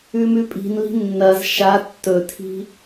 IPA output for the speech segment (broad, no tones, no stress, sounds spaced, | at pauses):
ʉ m ʉ pʼ i̤ n l i̤ nː ɐ z ʃ a tː ɵ tʰ i̤